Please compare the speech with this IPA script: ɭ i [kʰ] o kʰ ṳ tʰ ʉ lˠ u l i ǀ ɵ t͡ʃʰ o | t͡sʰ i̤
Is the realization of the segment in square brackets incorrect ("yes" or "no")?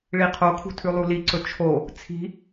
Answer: yes